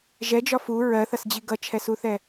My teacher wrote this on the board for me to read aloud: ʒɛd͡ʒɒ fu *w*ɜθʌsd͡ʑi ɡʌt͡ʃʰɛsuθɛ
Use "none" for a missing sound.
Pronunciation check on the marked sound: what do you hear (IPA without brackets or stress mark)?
ɹ